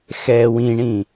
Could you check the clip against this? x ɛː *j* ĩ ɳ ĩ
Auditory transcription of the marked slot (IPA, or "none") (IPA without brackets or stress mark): w